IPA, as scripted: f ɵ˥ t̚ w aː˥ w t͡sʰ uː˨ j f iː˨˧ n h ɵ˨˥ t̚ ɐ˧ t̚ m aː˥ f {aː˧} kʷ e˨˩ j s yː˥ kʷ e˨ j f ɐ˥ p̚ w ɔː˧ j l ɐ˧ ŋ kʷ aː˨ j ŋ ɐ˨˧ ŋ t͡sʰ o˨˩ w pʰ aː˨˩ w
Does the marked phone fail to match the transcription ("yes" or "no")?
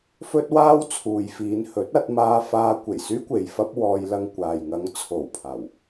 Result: no